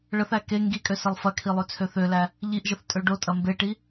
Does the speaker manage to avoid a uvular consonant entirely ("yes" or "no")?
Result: yes